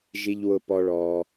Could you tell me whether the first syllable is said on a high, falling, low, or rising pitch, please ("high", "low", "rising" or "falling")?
low